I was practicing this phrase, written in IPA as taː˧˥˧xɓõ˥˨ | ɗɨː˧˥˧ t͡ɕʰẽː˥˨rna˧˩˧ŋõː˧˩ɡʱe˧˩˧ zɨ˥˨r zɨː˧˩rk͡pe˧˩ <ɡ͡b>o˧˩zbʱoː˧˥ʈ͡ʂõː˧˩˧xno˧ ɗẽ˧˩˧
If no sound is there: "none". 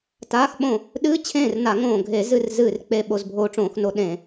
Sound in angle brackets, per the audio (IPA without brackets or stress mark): ɓ